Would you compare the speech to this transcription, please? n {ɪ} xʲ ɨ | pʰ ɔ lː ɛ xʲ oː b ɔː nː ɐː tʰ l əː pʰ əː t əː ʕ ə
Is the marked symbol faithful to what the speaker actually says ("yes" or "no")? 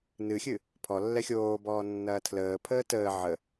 no